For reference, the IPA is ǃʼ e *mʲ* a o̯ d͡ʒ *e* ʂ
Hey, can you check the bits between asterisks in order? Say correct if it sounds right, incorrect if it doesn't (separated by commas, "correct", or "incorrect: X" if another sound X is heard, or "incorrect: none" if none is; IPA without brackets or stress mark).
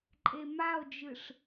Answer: incorrect: m, incorrect: ɨ